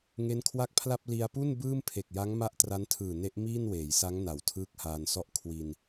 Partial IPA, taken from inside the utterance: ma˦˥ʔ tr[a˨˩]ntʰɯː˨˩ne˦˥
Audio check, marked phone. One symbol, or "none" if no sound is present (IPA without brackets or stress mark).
a˦˥